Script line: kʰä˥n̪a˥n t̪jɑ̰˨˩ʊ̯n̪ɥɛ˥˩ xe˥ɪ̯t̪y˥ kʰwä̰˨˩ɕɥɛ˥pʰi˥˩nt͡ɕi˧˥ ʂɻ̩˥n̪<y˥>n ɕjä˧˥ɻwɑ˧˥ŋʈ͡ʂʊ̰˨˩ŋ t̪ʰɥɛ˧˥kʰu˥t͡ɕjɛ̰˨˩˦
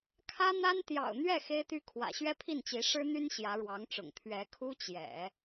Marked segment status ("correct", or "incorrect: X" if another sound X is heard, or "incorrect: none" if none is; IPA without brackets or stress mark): correct